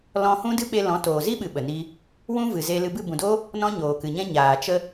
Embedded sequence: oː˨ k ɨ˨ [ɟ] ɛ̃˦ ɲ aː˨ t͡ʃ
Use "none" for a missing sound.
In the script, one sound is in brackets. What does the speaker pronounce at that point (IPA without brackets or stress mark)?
ɲ